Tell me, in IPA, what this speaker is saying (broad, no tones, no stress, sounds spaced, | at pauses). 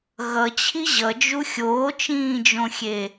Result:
ɣ ʌ t͡ɕʰ i ʑ ʌ d͡ʒ u xʲ oː t͡ʃ ĩː d͡ʒ õ xʲ e